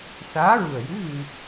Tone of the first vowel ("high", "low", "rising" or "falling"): rising